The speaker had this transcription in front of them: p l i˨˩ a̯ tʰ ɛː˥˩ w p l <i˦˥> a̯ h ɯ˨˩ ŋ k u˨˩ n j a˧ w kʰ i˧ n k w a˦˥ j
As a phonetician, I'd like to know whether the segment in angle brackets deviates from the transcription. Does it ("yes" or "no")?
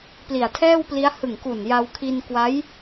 no